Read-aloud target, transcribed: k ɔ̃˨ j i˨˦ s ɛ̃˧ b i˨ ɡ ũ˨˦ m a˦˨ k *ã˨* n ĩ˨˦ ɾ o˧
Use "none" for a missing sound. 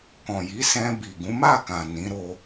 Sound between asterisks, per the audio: ã˨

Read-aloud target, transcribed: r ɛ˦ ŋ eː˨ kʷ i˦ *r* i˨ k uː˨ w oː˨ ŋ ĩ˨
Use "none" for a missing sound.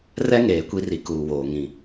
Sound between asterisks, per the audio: r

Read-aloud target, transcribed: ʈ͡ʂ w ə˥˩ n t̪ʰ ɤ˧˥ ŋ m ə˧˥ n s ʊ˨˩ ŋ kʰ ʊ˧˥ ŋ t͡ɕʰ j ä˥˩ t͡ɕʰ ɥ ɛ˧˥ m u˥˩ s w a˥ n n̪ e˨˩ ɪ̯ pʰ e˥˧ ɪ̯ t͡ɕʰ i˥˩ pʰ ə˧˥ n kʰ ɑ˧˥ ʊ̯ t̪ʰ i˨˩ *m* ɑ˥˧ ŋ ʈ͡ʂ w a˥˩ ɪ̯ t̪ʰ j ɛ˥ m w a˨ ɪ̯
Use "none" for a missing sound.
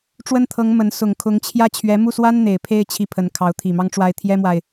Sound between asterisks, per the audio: m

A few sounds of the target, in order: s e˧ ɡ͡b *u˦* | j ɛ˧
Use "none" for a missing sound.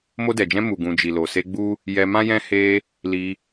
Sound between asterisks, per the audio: u˦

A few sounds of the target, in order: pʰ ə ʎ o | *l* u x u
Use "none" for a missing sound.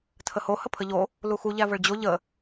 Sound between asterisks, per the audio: l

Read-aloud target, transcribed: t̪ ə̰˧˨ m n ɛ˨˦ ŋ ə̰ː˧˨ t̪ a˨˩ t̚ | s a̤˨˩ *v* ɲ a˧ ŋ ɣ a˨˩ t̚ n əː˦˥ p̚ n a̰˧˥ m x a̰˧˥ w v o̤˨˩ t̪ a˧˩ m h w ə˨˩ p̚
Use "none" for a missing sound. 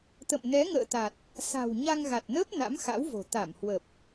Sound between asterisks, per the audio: w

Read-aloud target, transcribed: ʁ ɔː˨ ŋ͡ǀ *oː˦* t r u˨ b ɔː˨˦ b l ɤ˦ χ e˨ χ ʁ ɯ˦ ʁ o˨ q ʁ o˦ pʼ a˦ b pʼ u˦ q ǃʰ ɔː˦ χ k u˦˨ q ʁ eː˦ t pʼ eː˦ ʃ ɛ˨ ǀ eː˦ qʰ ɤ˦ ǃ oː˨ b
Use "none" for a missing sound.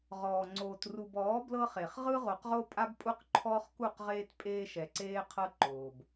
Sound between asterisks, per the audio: oː˨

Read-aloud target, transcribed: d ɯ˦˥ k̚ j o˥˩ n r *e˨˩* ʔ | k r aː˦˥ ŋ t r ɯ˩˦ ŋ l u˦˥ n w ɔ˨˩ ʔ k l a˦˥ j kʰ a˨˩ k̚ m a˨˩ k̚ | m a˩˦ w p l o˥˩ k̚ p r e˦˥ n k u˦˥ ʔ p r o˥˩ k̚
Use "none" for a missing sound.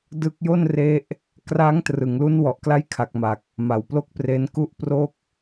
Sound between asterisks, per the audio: e˦˥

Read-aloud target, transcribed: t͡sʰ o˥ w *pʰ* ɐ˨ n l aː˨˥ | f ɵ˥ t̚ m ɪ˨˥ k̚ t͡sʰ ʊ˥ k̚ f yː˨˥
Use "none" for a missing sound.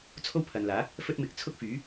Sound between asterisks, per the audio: pʰ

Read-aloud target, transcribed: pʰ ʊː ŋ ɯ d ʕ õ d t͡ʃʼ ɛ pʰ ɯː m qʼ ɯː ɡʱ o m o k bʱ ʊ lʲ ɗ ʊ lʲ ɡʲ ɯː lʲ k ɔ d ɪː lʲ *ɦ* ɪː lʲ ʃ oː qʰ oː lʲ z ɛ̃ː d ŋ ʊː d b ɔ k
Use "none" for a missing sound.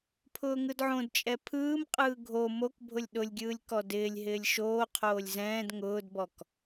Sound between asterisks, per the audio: ɦ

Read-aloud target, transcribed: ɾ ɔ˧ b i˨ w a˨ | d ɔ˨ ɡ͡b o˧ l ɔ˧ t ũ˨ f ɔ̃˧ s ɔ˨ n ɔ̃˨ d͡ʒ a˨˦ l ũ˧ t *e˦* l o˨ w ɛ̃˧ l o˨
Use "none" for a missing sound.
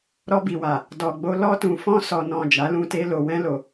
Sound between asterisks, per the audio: e˧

